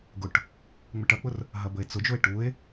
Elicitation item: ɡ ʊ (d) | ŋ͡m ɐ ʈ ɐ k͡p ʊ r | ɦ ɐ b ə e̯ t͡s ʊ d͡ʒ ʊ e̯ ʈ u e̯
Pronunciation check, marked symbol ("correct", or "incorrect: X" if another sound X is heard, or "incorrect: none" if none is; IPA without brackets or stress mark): incorrect: ʈ